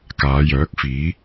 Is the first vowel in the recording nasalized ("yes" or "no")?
no